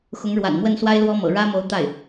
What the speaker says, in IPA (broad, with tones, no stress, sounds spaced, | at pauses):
x ʊ˧˥ ŋ ɻ w a̰˨˩ n m w ə˥˩ n s w a˥ ɪ̯ l w ɔ˥ m ɤ̰˨˩ ɻ ä˥ m o˧˥ ʊ̯ t̪ a˥˩ ɪ̯